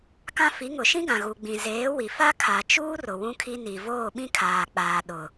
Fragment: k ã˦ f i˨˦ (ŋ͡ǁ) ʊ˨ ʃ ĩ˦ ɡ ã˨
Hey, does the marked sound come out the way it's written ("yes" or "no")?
no